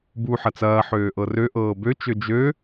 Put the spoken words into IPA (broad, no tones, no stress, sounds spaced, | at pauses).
b u ħ ɐ t͡s ɐː ħ øː ʔ ɤ r ø ʔ ɤː b ø t͡ʃ ø d͡ʒ ø